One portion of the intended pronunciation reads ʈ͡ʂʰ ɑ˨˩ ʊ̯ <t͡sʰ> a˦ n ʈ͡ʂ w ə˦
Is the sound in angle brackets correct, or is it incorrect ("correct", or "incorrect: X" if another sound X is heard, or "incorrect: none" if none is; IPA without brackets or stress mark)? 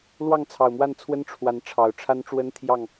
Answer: incorrect: ʈ͡ʂʰ